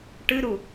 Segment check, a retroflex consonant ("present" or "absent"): present